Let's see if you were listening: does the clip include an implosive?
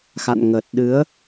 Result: yes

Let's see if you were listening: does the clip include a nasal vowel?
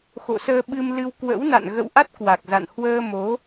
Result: no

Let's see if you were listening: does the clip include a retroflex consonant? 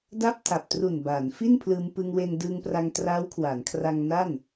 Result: no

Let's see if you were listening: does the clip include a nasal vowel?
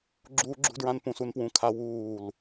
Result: yes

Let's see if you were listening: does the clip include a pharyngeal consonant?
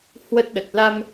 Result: no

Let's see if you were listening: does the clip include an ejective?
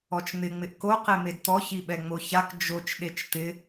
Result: no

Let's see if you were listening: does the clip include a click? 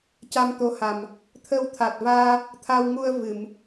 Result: no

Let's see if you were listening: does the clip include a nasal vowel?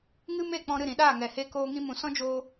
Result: yes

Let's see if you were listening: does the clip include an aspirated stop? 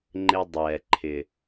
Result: yes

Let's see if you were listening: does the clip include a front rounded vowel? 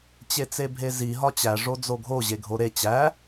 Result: no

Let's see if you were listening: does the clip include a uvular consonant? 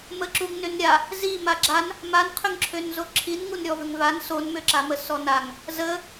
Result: yes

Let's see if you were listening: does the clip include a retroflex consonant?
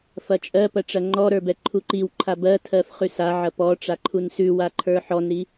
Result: yes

